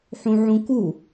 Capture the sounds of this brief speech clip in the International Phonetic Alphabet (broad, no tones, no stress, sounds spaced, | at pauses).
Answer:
ħ ũ ʕ ũ k u